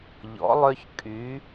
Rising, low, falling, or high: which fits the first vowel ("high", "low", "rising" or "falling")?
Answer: rising